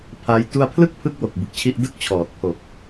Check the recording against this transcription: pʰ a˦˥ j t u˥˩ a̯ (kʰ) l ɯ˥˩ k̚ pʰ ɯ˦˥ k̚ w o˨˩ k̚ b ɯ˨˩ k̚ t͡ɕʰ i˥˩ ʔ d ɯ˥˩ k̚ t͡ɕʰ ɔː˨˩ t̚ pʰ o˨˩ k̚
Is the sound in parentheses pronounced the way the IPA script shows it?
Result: no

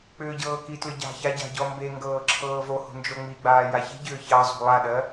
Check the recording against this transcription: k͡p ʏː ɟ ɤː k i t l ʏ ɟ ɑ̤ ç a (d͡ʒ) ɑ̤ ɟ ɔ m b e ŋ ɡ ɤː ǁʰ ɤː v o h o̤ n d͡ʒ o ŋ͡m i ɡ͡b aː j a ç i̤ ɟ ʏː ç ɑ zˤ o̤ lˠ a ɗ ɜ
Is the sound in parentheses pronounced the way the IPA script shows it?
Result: no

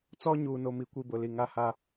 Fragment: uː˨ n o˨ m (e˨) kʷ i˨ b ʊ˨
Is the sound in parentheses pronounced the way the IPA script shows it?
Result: no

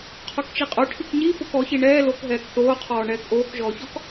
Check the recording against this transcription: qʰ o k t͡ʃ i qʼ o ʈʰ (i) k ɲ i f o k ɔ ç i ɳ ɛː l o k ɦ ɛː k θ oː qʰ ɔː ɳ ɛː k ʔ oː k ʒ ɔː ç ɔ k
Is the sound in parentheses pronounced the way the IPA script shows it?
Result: yes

